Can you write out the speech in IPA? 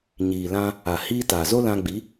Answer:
ɲ iː˨ l ã˧ | a˨ h iː˧ t a˨ z o˦ l ã˧ ɡ͡b i˨˦

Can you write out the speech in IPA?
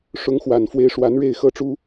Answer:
ʂ ʊ˧˥ ŋ x w a˨˩ n f w e˧˥ ɪ̯ ʂ w a˧˥ n ɻ e˥˩ ɪ̯ x ɤ˥ ʈ͡ʂ u˥

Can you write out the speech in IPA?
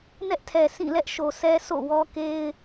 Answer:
n ɛ˦ ʔ tʰ ɛ˨ sʰ ĩ˦˨ l ɛ˦ ʔ ʃ o˨ s ɛ˦ sʰ o̰˦˨ w ɔ˦ k e˦ ɪ̯

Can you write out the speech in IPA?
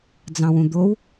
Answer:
d͡z ɑ̃ w ũ d̪ o w

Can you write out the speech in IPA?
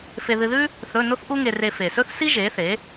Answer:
f e˧ ð ɨ˧ ð ʉ˥ | θ ɵ˧˥˧ n o˥ θ ʔ u˥ ŋ e˧ r e˧ f e˨˩ s ɵ˥ θ s i˥ ʒ e˩˥ θ e˩˥

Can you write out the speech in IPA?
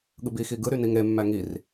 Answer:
ɠ ɯ b i x i ɡ ɯ ɾ y n i ŋ ɾ e mː æ ŋ i r

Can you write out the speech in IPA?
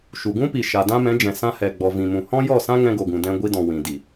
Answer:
ʃ u˨ ɡ ũ˦ p i˨ ʃ a˨ d ã˦ m ɛ̃˨˦ d͡ʒ ɛ̃˨ s ã˧ h ɛ˨ ɡ͡b ɔ˨ v ĩ˨ m ũ˨ h ɔ̃˦ j ɔ˦˨ s ã˦ ŋ ɛ̃˧ ɡ o˨ ɡ ũ˨ d ɛ̃˧ ɡʷ i˧ d ɔ̃˨ w ĩ˨ d i˨

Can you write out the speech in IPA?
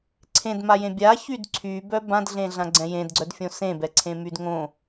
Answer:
ǀʰ ẽ d m a j ẽ bʲ a ç y d ǀʰ y b œ b ã d ɮ ẽ ɮ ã ɡ͡ǀ ɛ̃ j ẽ d ɡ͡ǀ œ d fʲ õ s ẽ b ɛ ǀʰ ẽ m y d ŋ õ

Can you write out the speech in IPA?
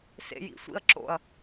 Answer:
s ḛ j ḭ sʷ ḭ ɐ̯ ǁ o̰ ɐ̯

